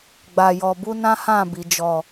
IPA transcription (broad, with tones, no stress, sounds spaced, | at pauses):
ɡ͡b a˧ j ɔ˧ b u˦ n ã˦ h ã˦˨ b i˨ d͡ʒ ɔ˨